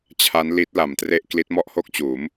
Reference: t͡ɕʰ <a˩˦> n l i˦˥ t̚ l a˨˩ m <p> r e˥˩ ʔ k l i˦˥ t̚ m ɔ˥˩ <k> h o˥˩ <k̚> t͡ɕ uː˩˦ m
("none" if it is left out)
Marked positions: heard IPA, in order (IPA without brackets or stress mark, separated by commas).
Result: a˦˥, t, ʔ, k̚